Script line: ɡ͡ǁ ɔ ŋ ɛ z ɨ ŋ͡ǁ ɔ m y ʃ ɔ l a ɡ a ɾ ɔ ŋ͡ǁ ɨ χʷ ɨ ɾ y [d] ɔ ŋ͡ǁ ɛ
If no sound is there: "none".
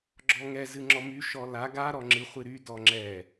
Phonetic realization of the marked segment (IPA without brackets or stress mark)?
d